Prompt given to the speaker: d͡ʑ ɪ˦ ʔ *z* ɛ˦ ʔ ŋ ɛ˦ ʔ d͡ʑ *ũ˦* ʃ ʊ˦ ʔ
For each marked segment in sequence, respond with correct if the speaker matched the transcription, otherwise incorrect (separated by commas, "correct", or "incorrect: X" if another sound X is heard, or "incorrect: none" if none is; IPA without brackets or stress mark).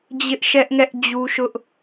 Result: incorrect: ʃ, incorrect: u˦